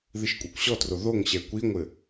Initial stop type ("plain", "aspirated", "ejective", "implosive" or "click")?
ejective